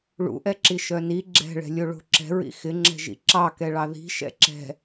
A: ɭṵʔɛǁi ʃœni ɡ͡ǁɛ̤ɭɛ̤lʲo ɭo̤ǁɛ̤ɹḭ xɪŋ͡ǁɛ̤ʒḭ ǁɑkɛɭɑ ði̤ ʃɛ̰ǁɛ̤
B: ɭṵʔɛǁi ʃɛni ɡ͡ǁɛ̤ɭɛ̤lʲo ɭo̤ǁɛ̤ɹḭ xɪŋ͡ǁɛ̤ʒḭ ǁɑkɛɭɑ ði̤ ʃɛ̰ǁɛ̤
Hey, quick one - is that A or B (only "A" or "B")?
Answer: A